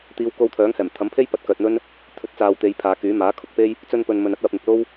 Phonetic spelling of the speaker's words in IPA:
t̪ iː˨˧ w k o˧ w t̪ʰ œː˨˥ ŋ h ɛː˨˩ m t̪ʰ ɐ˨˥ m pʰ e˥ j p ɐ˧ t̚ k œː˨ t̚ n̪ ɵ˥ n | t̪ʰ ɵ˨˥ t̚ t͡s aː˨ w t̪ e˨˧ j pʰ aː˨˧ k yː˨˥ m aː˨˥ kʰ ʊ˨ k̚ p e˥ j | t͡s ɵ˧ n p ɵ˨ n m ɵ˨ n ɐ˥ t̚ w ɐ˧ p̚ n̪ ɪ˨ k̚ l o˥ w

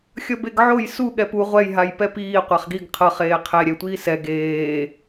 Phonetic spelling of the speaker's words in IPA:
xʲ ʌ b e ɡ ʕ o j s u ɠ ɛ p u ʁʷ ɛ j ɦ a j p ɛ p iː qʷ a χ ɡ i ɡ qʰ ʌ χ eː qʰ e ɾʲ ɛ tʷ iː s ɛ ɡ eː

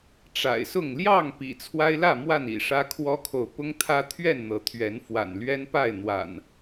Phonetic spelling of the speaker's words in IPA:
ʈ͡ʂ a̰˨˩ ɪ̯ s ʊ˥˨ ŋ l j ɑ˥˨ ŋ p ḭ˨˩ t͡sʰ w a˦ ɪ̯ l ä˥˨ m w a˥˨ n ḭ˨˩ ʂ ä˦ kʰ w ɔ˦ kʰ o˨ ʊ̯ p ʊ˦ ŋ t̪ʰ ä˦ t̪ʰ ɥ ɛ˥˨ n n̪ ɤ˨˦ t̪ʰ ɥ ɛ˨˦ n f w a̰˨˩ n l ɥ ɛ˦ n p a˥˨ ɪ̯ n̪ w a̰˨˩ n

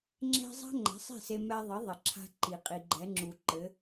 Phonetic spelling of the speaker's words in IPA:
ŋ͡ǁ ɛ̤˥ zˤ a̤˥ ŋ͡ǃ ɛ̤˩˥ sˤ ɛ̤˥˩ s e˧ m ɛ˧ ðˤ ɘ˩˥ ðˤ ɘ˩ ǁʰ a̤˧ ǃ i˩ qʼ i˩ ɡ͡ǃ ɛ˩˥ ŋ͡ǁ u˩ ǃ ɘ˩˥

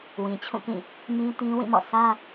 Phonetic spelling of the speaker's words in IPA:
w ĩ˨ t͡ɕʰ ũ˦˨ k ĩ˦˨ | m ĩ˦ t ĩ˦ w ĩ˦˨ m ɔ̰˦˨ s ä˦

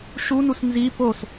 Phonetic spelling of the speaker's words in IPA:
ʃ u n u s n z i p o s

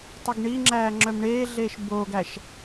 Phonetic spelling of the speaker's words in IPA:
tˤ ɵ ɡ ɳ i ŋ͡ǁ æː ŋ͡ǁ œ m ɳ eː ɮ eː ʃ b oː ɡ æ ʃ

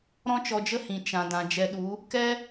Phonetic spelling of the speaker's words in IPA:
ɾ ɔ̃˦ t͡ʃ ɔ˧ d͡ʒ ə˦ h ĩ˨ t͡ʃ ã˨ d ã˨ d͡ʒ ɛ˧ ɗ u˨˦ | k ɛ˦

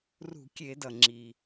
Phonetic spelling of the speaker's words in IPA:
r ṳ˧˩˧ kʲ e˧˩˧ d ʌ˩ ŋ͡ǁ i˩

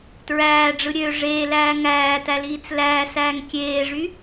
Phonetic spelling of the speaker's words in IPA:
t ɹ æː ɖ͡ʐ ɯ ɾʲ ø ʐ eː l æː ŋ æː t æ l iː t͡s l æː s æː ŋ kʲ eː ʐ y

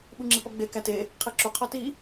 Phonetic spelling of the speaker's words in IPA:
ɓ u ŋ͡ǁ i p ɒ ɡ͡b e k æ t e | qʰ e ǁ u qʰ ɒ t i

